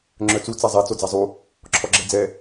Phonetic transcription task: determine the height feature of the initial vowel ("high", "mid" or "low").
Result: mid